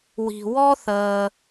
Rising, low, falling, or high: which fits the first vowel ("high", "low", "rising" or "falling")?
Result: low